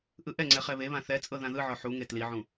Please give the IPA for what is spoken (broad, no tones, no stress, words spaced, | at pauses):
ʔɯʔɛŋ͡ǀɛ χɛβeβã θɛ t͡sʼɤðãðɯʕɔ ħuŋe tliʕũ